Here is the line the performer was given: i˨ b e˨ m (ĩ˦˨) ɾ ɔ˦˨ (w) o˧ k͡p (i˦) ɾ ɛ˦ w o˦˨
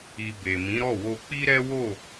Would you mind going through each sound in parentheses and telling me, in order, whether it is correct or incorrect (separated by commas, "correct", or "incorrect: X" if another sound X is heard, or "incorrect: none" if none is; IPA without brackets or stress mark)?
incorrect: ĩ˨˦, correct, correct